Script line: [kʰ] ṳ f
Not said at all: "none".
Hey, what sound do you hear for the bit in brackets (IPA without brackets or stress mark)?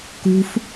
k